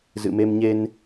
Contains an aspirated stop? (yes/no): no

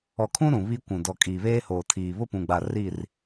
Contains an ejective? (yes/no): yes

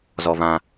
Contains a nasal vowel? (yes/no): yes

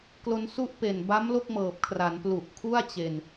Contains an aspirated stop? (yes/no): yes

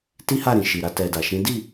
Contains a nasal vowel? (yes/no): yes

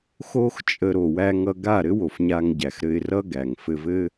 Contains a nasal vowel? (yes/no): no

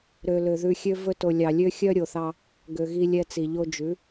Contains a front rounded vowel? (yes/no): yes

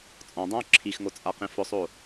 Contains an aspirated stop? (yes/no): yes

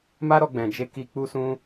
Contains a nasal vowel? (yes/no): yes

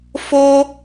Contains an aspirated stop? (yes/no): no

